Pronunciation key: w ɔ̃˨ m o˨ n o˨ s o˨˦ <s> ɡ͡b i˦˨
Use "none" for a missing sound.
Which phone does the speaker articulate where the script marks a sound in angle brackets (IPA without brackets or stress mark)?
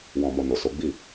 none